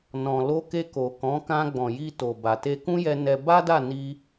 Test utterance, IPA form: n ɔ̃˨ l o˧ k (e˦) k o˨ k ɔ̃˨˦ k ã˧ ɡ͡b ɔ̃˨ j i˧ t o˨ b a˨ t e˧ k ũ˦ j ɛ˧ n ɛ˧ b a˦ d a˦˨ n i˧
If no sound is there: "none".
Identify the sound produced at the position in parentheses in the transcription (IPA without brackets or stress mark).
e˧